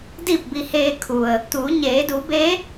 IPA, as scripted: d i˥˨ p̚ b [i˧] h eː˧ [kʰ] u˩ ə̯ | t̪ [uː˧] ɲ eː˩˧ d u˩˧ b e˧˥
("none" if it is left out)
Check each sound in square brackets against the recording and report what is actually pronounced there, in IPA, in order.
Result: i˧, kʰ, uː˩˧

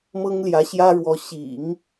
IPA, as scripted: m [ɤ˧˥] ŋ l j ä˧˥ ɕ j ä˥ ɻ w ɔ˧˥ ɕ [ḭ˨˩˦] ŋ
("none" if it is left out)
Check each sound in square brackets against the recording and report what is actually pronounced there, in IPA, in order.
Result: ɤ˥, ḭ˨˩˦

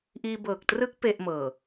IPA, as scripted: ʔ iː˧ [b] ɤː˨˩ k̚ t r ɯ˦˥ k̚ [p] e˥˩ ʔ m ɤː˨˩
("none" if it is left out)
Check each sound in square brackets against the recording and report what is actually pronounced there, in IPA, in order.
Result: b, p

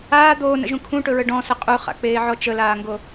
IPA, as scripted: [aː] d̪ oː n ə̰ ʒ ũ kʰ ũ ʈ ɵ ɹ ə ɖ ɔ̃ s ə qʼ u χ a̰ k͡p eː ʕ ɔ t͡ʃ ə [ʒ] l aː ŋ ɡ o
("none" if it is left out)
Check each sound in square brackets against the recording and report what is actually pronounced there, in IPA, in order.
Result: aː, none

